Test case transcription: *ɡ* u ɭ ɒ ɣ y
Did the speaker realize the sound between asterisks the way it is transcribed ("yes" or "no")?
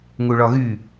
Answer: no